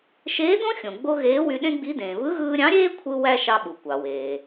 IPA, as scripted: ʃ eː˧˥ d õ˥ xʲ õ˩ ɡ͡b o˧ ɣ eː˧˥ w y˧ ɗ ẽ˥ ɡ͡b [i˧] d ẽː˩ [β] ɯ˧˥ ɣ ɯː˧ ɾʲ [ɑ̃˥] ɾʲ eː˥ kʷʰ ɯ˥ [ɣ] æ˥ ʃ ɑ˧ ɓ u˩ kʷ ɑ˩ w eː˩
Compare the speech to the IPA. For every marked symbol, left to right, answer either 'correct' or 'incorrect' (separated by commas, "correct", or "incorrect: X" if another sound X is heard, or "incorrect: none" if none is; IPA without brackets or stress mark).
incorrect: i˧˥, correct, incorrect: ɑ̃˧˥, incorrect: w